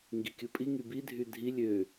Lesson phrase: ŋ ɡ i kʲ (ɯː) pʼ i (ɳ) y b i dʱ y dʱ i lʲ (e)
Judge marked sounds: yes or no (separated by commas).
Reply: no, no, no